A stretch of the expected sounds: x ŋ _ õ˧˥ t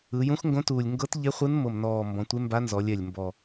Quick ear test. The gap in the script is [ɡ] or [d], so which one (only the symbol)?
ɡ